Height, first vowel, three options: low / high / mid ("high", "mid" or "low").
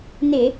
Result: high